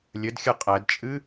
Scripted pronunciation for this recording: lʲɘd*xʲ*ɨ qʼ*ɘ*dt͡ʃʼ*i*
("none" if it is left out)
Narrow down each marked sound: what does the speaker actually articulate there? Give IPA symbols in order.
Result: xʲ, ɛ, ɨ

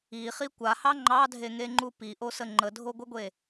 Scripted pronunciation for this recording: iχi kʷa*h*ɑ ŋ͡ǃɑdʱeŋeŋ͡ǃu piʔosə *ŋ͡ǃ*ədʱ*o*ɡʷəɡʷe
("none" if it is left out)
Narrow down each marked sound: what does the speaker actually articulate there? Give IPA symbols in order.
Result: h, ŋ͡ǃ, o

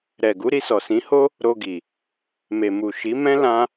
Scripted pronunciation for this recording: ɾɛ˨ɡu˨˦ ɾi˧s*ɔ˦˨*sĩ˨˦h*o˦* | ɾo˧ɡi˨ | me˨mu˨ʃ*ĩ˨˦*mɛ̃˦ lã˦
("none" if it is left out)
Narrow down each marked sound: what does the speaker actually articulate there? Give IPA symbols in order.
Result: ɔ˨, o˦, i˨˦

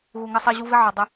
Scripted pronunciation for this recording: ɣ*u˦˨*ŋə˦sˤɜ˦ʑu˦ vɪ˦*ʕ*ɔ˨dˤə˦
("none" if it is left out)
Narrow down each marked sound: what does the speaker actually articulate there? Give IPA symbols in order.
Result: u˨, ʕ

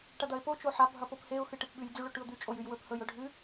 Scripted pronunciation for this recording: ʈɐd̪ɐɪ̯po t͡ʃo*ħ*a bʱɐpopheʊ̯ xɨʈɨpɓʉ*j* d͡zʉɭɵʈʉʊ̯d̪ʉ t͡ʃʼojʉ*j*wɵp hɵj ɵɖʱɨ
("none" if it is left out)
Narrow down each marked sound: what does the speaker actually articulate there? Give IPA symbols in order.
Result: ħ, j, j

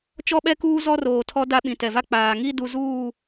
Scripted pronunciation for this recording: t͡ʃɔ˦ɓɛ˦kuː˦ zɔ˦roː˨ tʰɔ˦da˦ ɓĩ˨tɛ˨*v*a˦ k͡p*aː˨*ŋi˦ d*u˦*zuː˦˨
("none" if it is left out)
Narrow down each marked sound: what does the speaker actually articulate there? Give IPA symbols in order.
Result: v, aː˨, u˦

